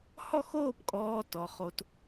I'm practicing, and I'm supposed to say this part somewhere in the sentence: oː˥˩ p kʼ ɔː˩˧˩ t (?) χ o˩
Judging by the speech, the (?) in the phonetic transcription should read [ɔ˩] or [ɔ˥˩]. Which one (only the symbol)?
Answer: ɔ˩